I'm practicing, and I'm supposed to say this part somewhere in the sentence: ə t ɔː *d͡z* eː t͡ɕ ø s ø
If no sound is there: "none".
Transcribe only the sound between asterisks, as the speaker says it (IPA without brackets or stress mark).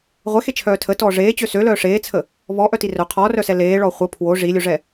ʐ